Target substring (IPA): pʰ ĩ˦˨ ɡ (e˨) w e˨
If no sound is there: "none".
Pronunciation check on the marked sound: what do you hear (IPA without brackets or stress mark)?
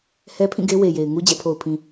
e˦